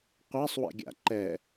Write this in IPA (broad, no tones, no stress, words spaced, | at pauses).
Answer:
qʷasˤwɛ̰ɡʲa̰ ǃɛ